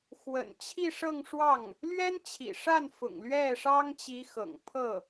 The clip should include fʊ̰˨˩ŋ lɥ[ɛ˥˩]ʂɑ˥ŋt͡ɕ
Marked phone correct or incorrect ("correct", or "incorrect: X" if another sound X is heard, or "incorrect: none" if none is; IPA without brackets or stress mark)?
correct